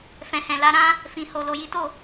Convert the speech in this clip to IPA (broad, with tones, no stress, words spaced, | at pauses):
fɛ̃˨hɛ̃˨la˨˦ɾã˦ | fĩ˨ho˨ lo˨ji˨˦to˦˨